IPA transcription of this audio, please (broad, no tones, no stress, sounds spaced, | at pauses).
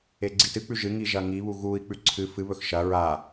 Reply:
e ɡ͡ǀ i t ɨ k͡p ʉ ʒ ɨ ŋ i ʒ ɐ ŋ i β u ɣ u i̯ k͡p ʉ ǀʰ ɨ f ɨ β ɵ x ʃ ɐ ɹ a